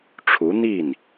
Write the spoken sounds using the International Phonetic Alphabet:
ʈ͡ʂʰ u˧˥ n̪ i˥˩ n

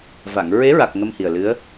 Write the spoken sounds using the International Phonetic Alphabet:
v a˨˩˨ ŋ ɹ e˧˥ ɹ a˨˩ k̚ ŋ ə˧ m h i˨˩ ə̯ l ɨ˧˥ ə̯

